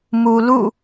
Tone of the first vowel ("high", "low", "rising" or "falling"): low